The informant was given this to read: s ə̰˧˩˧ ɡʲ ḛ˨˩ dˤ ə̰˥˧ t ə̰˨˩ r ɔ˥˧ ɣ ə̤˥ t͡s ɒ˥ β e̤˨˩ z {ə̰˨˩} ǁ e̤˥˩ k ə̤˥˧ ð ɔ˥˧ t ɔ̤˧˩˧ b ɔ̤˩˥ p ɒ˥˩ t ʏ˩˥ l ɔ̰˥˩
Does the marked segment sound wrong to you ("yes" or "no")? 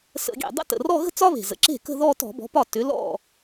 yes